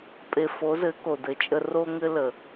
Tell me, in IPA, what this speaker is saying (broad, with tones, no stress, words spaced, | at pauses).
pʼe˨fo˨˦zɘ˨˦ ko˨dɘ˨˦t͡ʃʼə˦ ro˦ŋɘ˦lə˨